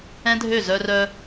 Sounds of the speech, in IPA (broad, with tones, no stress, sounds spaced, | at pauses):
ɛ̃˦ dʱ ø˦˨ z œ˧ r œ˧